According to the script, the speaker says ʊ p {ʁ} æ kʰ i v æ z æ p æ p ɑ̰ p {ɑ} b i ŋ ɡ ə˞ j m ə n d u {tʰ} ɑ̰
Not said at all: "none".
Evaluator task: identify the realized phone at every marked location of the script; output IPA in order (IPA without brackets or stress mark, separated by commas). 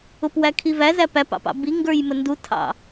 w, ɑ̰, tʰ